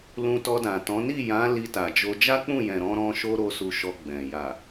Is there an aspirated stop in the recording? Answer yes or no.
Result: no